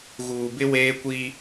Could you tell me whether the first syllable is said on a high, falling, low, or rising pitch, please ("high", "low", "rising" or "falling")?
low